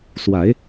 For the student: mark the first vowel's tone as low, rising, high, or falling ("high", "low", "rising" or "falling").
rising